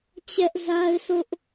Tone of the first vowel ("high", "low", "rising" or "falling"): high